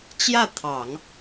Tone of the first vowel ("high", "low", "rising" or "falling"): falling